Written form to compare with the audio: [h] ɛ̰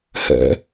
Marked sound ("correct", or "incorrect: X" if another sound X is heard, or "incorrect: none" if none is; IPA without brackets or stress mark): correct